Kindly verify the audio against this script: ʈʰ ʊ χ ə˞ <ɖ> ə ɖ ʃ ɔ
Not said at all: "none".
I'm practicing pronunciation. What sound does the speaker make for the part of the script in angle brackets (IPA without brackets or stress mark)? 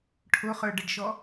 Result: ɖ